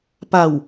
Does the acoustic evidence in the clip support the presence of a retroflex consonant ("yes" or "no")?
no